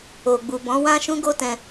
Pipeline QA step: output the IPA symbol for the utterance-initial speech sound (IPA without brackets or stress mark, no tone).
o